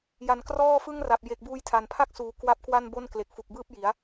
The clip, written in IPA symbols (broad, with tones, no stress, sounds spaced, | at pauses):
j a˨˩ n k r ɔː˥˩ f ɯ˥˩ ŋ r a˨˩ p̚ j e˨˩ k̚ b uː˧ j tʰ a˨˩ n pʰ a˥˩ k̚ s uː˨˩ k w a˦˥ p̚ k w a˥˩ n b o˥˩ n k l e˨˩ k̚ f u˨˩ k̚ b ɯː˥˩ p̚ j i˩˦ a̯